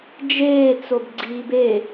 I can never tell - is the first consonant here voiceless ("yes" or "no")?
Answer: no